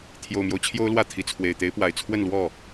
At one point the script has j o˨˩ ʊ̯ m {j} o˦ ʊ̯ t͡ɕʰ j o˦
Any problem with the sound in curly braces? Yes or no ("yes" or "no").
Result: no